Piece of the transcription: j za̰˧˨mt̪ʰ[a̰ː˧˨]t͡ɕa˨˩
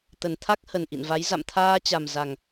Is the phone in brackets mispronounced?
yes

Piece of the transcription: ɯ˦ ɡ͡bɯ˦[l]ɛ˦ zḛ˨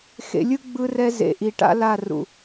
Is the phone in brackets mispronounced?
yes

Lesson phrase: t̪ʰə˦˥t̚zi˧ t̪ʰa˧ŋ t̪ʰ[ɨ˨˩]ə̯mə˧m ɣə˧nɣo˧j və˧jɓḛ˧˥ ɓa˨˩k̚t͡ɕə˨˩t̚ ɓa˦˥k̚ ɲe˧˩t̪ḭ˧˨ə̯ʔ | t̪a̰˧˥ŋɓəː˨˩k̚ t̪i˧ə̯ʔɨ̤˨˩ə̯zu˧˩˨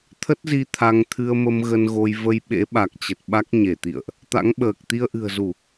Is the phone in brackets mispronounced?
yes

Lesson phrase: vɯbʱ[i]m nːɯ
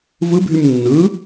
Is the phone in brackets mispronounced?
yes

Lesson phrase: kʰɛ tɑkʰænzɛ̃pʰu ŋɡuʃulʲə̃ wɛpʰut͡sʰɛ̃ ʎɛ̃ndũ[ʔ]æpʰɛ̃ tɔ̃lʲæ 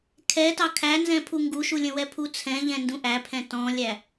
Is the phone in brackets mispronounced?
no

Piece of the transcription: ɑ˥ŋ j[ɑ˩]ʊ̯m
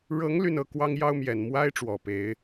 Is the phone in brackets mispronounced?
yes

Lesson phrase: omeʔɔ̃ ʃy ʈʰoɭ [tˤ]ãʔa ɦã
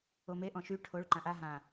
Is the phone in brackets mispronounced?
yes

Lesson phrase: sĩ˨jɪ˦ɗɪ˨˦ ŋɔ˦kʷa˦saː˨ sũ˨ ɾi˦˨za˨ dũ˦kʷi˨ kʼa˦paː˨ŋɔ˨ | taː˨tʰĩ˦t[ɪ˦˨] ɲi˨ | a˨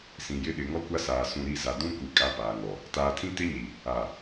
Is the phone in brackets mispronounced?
yes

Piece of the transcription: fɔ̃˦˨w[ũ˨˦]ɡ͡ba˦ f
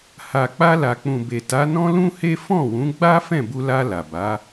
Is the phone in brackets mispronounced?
no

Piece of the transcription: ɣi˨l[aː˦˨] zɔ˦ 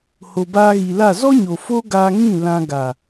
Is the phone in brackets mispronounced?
yes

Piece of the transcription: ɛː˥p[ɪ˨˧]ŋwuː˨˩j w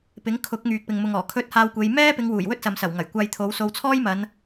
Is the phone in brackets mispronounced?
no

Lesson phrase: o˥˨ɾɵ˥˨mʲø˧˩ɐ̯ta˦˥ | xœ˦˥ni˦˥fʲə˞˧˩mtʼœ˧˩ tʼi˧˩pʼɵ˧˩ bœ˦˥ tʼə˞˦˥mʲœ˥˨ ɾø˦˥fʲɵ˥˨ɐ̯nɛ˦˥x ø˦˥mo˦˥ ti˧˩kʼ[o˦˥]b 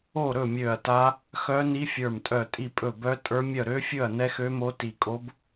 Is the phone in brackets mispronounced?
no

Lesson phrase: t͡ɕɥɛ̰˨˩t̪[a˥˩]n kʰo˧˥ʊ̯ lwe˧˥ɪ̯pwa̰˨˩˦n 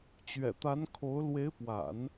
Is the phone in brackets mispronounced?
yes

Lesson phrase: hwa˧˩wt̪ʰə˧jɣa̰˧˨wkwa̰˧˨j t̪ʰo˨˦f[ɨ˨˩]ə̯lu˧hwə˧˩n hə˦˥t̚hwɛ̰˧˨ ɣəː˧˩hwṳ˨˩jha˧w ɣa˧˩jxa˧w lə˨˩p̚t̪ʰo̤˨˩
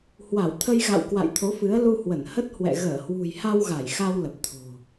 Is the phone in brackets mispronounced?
yes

